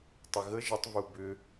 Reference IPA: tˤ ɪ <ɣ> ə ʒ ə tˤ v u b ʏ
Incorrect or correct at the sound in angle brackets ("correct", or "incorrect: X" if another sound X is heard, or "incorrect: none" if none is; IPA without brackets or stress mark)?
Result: correct